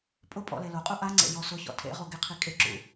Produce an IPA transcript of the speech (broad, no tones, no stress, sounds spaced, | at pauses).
pʼ ʊ pʼ ɔ̰ l e l o qʼ u ʔ a ŋ͡ǀ ḛ j ɔ s ʊ ç ɔ̰ tʰ ḛ ʁ o ɡ ɪ qʰ i kʼ ɪ ǁ ṵ